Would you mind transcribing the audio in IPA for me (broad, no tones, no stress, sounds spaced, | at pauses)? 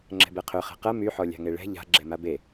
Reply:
ŋ͡ǁ ɛ̤ b ɛ qʰ ø χ ɛ̤ q ɐ m y ħ ɔ lʲ a̤ ŋ e ɭ ɛ̤ ʎ a̤ ɡ͡ǁ ɛ m a b e